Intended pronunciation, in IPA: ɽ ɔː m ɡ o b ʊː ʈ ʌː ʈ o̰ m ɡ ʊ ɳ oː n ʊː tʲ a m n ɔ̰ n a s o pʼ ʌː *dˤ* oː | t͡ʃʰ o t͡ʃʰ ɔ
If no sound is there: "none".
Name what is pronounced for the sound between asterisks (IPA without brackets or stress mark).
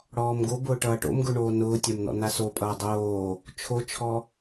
dˤ